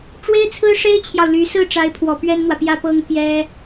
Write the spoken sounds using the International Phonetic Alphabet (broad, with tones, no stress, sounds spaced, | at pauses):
ʈ͡ʂ w e˥ ɪ̯ t͡sʰ ɹ̩˥ ʂ e˥ ɪ̯ t͡ɕʰ j ɑ˨ ʊ̯ l y˧˥ s ɹ̩˥˩ ʈ͡ʂ a˧˥ ɪ̯ pʰ w ɔ˨˩ p ɥ ɛ˥ n n̪ w ä˨ p j ä˥˩ p ɤ˥ ŋ p j ɛ˥